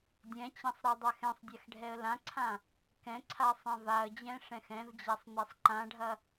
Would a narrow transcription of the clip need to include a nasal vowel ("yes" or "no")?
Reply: yes